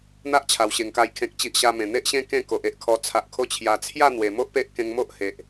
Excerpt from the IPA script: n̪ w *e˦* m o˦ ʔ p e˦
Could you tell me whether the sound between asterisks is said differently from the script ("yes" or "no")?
yes